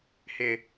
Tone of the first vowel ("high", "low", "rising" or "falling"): low